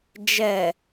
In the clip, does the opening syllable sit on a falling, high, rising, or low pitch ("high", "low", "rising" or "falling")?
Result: low